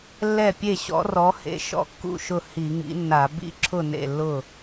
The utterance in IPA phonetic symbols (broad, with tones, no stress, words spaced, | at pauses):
lːɛ˥˩pʲe˥˩ɕɔ̰˨˥rɔ˨˥ hḛ˨˥ʃɔ̰˨˥kːṵ˥˩ʃʊ˥˩ hi˧˩˧ŋḭ˨˥nːa˧˩˧ bḭ˥˩ǁʰʊ˥˩ nḛ˥˩lːʊ˥˩